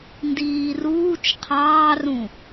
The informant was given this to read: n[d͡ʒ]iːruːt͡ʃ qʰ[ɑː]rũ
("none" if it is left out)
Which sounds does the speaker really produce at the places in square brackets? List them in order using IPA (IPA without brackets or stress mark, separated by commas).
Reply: d, ɑː